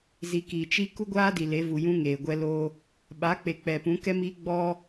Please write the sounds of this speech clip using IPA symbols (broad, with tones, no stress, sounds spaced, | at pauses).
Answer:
z i˨ k i˨ t͡ʃ i˦ k u˦ ɡʷ aː˦ d i˨ l e˨˦ v u˨ j ũ˦ ŋ eː˨ ɡʷ ɛ˦ l o˦ | ɓ a˨˦ k͡p e˨ k͡p ɛ˨ p ũ˨˦ k ɛ˦ m iː˦ ɡ͡b ɔ˦